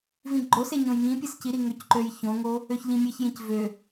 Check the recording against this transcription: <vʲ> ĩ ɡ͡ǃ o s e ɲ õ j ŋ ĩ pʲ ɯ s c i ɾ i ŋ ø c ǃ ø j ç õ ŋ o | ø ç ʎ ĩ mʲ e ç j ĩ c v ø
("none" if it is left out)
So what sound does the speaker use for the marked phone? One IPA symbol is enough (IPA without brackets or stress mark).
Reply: v